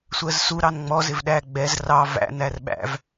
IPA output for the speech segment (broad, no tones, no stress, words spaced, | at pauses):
sʷɜzsu ɾɑnŋ͡mɔ zɪvɗæ ɡ͡bɛz rɑ væ̰ nærɓæ̰v